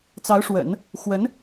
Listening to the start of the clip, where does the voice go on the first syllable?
rising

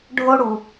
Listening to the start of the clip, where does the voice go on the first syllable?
high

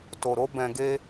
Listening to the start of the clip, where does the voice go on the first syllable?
low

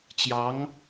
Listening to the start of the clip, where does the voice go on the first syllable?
rising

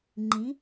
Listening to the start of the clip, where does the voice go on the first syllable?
rising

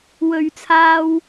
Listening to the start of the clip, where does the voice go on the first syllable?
low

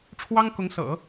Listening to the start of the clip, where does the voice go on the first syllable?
high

